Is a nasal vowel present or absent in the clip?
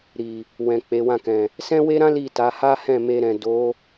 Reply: present